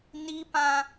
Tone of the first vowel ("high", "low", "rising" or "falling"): high